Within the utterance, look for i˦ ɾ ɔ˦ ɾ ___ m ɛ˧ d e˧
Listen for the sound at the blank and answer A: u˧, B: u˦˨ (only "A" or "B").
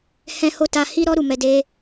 A